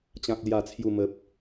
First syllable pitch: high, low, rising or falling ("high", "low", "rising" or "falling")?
low